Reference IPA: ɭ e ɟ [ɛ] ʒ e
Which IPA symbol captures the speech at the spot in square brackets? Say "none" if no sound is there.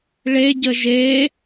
ə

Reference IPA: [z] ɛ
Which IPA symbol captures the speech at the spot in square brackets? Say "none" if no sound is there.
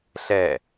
ɬ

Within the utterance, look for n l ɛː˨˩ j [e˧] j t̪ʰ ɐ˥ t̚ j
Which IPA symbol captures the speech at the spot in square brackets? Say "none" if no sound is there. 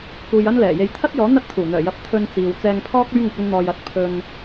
e˨˧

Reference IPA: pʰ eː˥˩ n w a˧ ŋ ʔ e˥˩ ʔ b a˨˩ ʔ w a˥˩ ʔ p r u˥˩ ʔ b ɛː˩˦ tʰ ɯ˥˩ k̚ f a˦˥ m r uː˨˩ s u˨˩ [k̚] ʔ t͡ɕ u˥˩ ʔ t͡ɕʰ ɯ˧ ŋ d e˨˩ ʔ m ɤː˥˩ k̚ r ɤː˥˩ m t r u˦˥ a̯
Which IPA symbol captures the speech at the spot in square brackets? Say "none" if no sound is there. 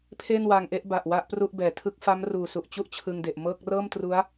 none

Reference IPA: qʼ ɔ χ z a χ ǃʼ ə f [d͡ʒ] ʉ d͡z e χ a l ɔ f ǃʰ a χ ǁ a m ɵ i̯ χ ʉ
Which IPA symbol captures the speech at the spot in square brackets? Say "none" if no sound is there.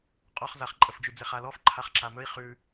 d͡ʒ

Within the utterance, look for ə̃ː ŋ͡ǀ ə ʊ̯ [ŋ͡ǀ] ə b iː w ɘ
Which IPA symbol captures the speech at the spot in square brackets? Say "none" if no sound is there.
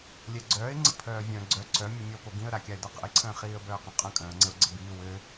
ɡ͡ǀ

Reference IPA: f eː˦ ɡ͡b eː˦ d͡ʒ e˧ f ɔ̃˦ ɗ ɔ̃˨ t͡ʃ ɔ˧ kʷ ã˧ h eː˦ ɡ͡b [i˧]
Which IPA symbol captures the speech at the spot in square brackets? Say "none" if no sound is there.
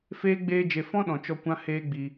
i˧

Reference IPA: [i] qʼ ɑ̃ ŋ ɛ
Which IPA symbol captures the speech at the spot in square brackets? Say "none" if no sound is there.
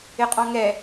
ɪ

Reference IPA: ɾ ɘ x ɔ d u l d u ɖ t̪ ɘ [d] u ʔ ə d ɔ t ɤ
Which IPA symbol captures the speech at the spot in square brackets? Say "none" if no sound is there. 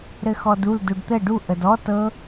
ɖ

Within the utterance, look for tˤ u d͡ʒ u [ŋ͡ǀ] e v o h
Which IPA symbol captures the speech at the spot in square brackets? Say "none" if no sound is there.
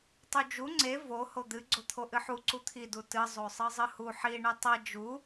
ŋ͡ǀ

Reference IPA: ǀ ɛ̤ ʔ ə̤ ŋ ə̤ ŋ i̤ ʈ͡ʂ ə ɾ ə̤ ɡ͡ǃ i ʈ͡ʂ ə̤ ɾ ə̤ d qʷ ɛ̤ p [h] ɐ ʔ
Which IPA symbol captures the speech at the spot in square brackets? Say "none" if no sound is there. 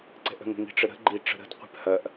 h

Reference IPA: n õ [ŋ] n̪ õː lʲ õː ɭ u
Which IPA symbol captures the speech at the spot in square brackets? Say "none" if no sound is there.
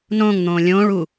ŋ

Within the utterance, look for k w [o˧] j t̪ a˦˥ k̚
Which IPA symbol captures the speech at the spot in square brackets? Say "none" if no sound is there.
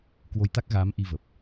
o˧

